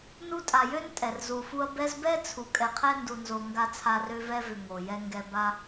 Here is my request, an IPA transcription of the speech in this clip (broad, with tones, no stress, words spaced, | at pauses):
nu˦tʼa˨jø˥n tʼɛ˩rzu˨fu˦ɐ̯ bɛ˦zbɛ˥ t͡sʰu˨ kʼɛ˨qʰɛ˥ndu˨nzo˨ ŋɡa˥t͡sʰa˦rø˥ vɛ˥vʏ˨ ŋo˩ jɛ˦ ŋɡɛ˦ ba˥